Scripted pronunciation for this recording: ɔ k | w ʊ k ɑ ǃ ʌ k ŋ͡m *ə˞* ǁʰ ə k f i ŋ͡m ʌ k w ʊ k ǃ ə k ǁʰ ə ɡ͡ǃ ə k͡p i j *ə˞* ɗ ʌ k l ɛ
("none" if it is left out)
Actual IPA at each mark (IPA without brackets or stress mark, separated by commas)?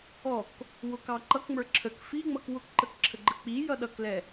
ə˞, ʌ